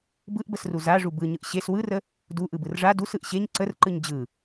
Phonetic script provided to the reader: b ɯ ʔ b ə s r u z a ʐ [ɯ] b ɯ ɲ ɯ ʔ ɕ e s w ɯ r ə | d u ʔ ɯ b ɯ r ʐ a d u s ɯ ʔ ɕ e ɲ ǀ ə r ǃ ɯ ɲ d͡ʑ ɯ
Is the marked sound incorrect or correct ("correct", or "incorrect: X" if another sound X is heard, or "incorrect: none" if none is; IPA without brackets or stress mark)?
incorrect: u